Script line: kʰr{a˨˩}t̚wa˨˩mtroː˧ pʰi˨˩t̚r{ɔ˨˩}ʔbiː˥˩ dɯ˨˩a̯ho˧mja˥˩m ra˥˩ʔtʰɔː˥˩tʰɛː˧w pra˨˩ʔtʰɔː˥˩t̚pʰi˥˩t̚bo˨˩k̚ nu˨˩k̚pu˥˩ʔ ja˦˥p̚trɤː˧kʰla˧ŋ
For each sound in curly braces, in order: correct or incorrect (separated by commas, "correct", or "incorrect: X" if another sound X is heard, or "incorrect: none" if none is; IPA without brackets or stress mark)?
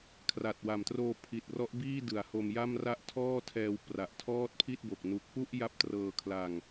correct, incorrect: ɔ˦˥